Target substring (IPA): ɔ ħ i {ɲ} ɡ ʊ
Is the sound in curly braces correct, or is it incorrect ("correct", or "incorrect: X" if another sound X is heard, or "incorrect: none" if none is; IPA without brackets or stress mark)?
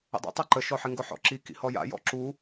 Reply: incorrect: ŋ